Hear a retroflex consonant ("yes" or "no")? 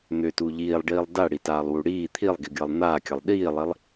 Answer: yes